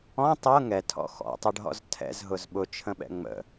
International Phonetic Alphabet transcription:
ɔ̃ tˤ ɤ ŋ ɛ tʰ ɔ̰ x ɔ̰ tˤ ə ɖ ɦ ɔ̰ z tʰ ɛ̰ z ɦ ʊ z ɓ ʊ t͡ʃʰ ə̃ ɓ ɛ̰ ŋ͡m ə̰

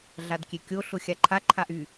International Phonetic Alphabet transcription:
ɮ a d kʲ e kʲ o ɬ ʊ xʲ a ǃʰ a ǃʰ a ʔ y

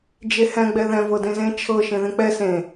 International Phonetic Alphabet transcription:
d͡ʒ e h ɛ̃ ɡ͡b ɛ ð ɛ̃ v ɤ d ẽ z ẽ t͡ʃʰ ɤ ʃ ẽ ð ẽ k͡p ɛ s ẽ

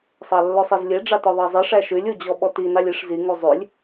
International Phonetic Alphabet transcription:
sˤ ɑ lː ɵ sˤ e z lʲ e ɖ͡ʐ ɑ t ɔ ðˤ ɑ zˤ i ʂ æ ʃ ʉ lʲ u d͡ʑ ɔ ɓ ɔ t i n ɑ lʲ i ʂ z i ŋ u zˤ ʉ lʲ

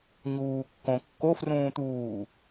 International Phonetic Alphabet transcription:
ɲ uː kː õ kː o f r ũː t̪ uː

